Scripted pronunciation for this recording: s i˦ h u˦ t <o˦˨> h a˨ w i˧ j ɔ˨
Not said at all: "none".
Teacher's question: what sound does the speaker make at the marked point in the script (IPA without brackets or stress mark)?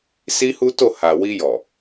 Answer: o˦˨